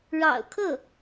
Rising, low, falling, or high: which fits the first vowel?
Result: low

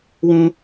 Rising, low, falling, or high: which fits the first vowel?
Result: high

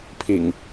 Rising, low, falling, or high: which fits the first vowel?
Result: low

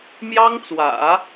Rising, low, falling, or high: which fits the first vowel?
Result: high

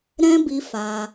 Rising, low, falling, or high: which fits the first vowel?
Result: high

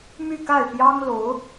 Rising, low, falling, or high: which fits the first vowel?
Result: falling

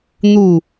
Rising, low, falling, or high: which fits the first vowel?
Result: falling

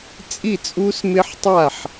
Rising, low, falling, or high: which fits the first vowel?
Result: falling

